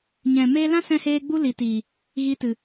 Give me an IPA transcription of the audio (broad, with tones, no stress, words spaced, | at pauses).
ɲɛ̃˨ meː˧lã˦sɛ̃˧heː˧ ɡ͡bu˦li˨tiː˨ | ɣi˧tɨ˨